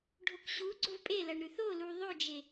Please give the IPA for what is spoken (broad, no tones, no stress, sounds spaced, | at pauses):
ɖʱ o k ɕ u ɡ͡ǀ o v pʼ e l ɐ ɳ ɾ ʉ θ o l u ðˤ ɵ d͡ʒ e